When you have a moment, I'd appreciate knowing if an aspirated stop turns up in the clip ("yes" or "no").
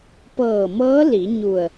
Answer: no